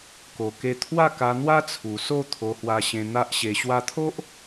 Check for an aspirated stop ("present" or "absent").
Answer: present